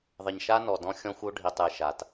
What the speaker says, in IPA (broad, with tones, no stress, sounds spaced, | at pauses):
ðˤ ɘ˨ ɲ ʃ a˦ n ɔ˨ d ɔ̃˦ xʲ ɔ̃˦ xʷ o˦ ɖʱ i˨ tˤ ɨ˨ ʃ a˨ t